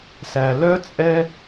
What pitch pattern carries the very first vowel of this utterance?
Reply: low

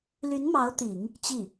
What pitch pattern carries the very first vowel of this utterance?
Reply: rising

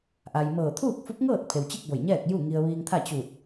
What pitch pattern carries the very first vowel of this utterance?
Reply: low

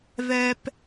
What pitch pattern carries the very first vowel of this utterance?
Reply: high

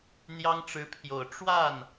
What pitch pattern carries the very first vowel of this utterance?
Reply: high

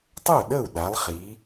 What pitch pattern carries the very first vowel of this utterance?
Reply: falling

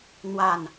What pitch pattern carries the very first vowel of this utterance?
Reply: falling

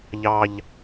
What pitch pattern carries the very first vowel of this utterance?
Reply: low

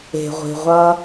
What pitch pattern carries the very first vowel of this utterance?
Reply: low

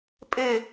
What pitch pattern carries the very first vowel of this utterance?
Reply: falling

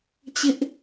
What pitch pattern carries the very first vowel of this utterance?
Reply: high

